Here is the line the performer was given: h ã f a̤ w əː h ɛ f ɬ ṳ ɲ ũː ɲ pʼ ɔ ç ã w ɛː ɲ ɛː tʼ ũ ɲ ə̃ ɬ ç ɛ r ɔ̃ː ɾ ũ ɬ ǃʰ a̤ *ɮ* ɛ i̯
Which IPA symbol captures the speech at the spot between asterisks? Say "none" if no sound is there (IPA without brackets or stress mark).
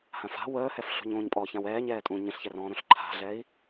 ɮ